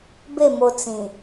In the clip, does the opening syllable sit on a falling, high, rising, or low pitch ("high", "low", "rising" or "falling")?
falling